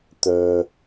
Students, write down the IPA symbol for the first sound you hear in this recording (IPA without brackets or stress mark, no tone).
t̪